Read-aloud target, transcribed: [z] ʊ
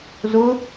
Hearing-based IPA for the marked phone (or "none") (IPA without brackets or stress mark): z